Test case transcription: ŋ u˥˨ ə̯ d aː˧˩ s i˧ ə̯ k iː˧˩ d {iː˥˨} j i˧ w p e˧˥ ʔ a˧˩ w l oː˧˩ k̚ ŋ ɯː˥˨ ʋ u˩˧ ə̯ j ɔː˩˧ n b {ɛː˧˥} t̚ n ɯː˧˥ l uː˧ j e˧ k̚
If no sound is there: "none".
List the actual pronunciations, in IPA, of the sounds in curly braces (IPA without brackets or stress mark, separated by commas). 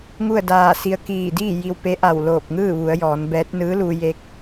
iː˥˨, ɛː˧˥